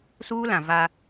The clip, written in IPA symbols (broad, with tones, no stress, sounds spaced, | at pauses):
s uː˦ l ã˨ v a˦